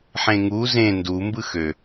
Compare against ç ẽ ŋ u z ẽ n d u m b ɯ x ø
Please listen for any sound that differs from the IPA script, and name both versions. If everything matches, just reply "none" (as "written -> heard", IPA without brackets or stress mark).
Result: ç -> ħ